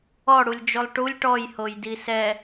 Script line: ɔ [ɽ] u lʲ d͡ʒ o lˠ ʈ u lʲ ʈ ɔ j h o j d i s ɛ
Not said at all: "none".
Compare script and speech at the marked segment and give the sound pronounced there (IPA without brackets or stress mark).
ɽ